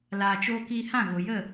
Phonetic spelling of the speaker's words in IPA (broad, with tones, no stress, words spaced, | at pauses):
laː˧t͡ʃoː˦ kiː˧hã˦˨ɣo˨jə˦˨